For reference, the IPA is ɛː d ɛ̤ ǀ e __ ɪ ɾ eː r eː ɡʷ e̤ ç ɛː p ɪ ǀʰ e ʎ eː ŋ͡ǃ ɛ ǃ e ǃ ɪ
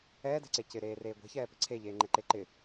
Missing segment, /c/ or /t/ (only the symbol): c